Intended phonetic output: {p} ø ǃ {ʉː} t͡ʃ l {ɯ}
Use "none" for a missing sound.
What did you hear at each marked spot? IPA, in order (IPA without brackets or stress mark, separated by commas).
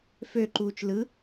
f, uː, ɯ